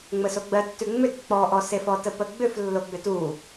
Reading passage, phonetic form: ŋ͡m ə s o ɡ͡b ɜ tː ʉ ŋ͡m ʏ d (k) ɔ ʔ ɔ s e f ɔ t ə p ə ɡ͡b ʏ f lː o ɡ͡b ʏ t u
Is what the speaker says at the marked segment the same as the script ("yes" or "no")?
no